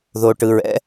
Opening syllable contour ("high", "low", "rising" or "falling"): low